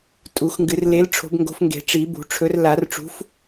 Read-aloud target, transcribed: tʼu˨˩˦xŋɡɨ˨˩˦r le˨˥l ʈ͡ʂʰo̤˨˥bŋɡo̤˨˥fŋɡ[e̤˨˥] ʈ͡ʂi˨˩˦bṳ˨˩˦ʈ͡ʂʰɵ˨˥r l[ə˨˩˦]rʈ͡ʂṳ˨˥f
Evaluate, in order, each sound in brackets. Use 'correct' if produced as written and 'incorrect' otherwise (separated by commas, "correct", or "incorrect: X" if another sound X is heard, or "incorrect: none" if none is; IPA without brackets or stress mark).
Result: incorrect: e̤˨˩˦, incorrect: a˨˩˦